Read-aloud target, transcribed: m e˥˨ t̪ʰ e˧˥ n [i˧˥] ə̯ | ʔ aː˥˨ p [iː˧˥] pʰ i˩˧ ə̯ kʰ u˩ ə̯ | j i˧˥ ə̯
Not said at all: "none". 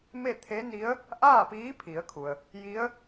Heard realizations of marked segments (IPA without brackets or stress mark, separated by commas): i˧˥, iː˧˥